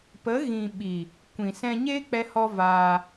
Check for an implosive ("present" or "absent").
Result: present